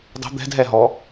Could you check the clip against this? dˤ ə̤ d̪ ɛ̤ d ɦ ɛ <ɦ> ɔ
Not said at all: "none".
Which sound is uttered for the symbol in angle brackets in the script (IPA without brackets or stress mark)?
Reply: ɦ